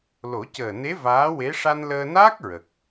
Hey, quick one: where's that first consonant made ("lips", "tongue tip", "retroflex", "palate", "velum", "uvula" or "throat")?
tongue tip